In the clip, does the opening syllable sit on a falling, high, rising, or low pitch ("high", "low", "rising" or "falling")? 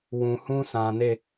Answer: low